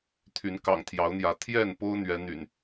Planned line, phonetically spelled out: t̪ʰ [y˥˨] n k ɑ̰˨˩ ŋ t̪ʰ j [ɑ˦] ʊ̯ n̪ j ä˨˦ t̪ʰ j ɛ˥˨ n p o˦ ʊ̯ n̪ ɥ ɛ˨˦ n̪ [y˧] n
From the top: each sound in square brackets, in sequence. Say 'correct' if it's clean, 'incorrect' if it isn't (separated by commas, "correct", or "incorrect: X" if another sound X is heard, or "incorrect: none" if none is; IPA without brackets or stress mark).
incorrect: y˨˦, incorrect: ɑ˨˦, incorrect: y̰˨˩